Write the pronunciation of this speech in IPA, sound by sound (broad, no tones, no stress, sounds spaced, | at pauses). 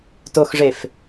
t o x ʐ e f